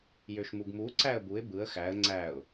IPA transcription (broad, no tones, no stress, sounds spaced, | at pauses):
j ø ʃ m u ɡ m u ǀ æ ə̯ b u ɪ̯ b ɯ ə̯ x æ ə̯ ŋ͡ǀ æ ʊ̯